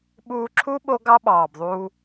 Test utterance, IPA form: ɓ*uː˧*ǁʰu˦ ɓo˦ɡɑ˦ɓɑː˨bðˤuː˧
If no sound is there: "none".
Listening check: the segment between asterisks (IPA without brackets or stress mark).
uː˧